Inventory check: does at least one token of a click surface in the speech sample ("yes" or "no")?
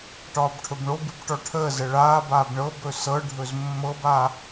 no